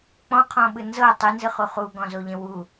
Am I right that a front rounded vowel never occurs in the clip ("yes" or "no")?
yes